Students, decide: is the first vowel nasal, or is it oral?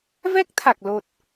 oral